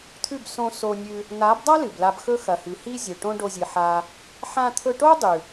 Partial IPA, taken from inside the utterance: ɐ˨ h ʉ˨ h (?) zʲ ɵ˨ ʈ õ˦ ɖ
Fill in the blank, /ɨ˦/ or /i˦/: i˦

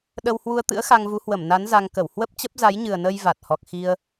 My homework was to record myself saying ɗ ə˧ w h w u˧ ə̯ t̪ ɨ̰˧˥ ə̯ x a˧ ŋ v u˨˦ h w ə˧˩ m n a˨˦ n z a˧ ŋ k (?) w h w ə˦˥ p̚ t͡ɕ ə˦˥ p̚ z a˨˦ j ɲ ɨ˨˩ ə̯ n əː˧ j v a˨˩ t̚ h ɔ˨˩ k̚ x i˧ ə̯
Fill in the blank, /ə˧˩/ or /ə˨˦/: ə˧˩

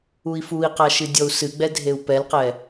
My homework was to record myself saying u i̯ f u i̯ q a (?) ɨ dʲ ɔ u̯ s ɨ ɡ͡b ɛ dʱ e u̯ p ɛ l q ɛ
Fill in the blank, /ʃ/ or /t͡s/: ʃ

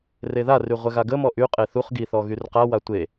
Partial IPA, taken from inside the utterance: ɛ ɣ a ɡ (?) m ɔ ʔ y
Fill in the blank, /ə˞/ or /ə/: ə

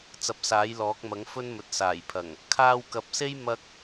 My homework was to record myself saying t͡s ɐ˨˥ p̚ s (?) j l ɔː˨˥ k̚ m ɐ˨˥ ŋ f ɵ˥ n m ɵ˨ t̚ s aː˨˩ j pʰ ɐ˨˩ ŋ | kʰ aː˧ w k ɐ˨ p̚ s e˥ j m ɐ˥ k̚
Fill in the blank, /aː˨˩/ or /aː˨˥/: aː˨˥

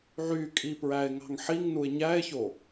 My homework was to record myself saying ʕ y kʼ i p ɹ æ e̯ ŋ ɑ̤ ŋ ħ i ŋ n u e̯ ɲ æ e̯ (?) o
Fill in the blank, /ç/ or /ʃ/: ç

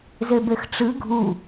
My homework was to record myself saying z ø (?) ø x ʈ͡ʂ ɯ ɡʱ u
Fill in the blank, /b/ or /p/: b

